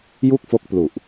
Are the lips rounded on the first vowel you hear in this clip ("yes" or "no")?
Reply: yes